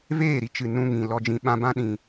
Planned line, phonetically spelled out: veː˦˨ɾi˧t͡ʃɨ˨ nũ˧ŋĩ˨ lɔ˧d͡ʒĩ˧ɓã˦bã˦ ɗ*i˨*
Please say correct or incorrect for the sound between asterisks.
incorrect